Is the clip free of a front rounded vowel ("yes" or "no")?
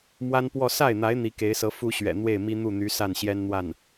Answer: no